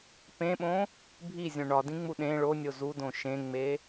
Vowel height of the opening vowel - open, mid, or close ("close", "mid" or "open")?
mid